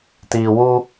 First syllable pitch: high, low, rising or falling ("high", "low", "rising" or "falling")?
low